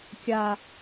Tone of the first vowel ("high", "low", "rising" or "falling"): low